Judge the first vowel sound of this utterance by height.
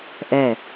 mid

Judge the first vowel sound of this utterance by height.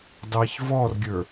low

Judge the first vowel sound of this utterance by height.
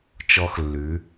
mid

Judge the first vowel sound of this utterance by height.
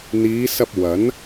high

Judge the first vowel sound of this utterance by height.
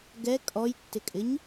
mid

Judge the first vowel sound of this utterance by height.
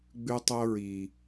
high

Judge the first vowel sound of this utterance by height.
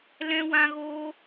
mid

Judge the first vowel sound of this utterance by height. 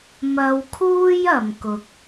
low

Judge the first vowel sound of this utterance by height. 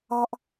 low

